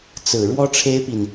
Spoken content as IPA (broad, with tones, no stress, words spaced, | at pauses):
t͡sɹ̩˨˩ ɻwɔ˥ʈ͡ʂʰe˥ɪ̯pi˨n